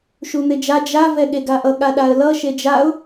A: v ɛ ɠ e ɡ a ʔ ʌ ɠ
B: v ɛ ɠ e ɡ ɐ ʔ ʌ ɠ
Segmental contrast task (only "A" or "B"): A